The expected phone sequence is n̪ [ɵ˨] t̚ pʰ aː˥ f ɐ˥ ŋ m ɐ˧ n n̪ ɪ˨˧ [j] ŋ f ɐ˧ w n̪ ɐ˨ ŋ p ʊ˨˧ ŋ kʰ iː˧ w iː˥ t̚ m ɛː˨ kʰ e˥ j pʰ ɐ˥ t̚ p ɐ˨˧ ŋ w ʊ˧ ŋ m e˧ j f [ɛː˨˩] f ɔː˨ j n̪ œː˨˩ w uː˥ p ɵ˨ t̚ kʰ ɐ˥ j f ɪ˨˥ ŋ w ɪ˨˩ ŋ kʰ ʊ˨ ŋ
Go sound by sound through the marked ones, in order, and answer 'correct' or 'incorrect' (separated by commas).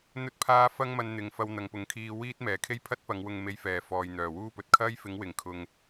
incorrect, incorrect, incorrect